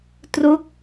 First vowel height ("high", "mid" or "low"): mid